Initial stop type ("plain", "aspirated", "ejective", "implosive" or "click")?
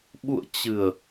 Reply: implosive